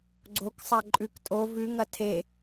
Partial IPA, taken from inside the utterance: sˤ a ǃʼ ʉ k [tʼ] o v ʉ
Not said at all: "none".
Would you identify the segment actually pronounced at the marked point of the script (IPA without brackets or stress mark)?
tʼ